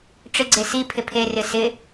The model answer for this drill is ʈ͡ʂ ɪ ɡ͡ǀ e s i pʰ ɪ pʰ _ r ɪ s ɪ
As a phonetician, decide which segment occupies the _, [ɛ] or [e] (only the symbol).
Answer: e